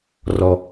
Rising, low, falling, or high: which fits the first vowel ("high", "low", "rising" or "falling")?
low